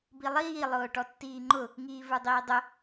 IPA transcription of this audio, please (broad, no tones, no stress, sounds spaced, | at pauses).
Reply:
b i lˠ iː lˠ ʊː ʈ ɔ tː iː ŋ͡ǃ ʊ | ŋ iː v ə˞ dˤ iː dˤ ʊ